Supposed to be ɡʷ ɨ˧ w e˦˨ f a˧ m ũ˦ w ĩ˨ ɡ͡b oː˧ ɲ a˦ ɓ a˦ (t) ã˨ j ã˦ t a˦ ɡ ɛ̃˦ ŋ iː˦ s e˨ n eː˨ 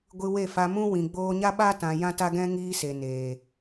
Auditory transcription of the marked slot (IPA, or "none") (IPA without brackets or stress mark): t